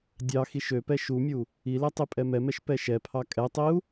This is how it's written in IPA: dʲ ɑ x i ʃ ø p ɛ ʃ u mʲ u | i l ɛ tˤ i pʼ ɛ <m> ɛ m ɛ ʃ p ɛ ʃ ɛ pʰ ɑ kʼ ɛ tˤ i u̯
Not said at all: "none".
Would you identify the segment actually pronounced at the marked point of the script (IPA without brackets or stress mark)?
m